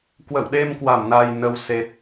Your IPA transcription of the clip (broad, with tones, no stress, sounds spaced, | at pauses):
k w ə̰˧˨ w ɗ e˧ m k w a˧˩ m n a˨˩ j n ə˨˩ w s e˨˩ t̚